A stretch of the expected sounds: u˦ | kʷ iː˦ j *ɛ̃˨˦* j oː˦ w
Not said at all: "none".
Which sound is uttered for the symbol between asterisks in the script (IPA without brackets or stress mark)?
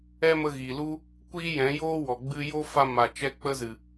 ɛ̃˨˦